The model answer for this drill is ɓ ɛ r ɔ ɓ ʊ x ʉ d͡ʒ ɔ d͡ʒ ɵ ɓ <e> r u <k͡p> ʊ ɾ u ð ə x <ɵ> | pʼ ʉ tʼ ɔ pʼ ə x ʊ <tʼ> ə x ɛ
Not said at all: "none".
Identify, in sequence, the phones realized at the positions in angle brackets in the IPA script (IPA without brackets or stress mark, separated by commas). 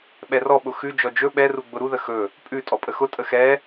ɛ, ɡ͡b, ɵ, tʼ